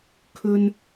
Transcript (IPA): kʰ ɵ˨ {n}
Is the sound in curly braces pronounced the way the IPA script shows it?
yes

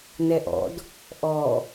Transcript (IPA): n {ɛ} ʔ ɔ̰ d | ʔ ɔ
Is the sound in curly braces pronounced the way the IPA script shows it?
yes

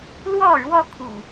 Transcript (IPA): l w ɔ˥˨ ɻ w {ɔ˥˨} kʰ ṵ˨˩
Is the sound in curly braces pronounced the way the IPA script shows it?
yes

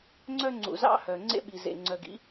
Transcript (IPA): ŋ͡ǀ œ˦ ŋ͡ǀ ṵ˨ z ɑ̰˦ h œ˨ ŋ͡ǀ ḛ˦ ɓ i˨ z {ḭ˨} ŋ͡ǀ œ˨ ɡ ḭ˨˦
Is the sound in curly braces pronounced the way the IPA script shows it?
no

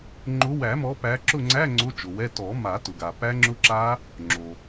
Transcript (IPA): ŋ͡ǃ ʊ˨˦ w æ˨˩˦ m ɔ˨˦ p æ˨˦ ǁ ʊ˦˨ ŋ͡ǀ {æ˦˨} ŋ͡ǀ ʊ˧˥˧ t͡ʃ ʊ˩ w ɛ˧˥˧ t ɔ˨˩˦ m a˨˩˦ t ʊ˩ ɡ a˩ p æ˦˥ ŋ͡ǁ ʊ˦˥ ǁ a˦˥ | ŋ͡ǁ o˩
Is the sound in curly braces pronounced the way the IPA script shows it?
no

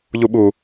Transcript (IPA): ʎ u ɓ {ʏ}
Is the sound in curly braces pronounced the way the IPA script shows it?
no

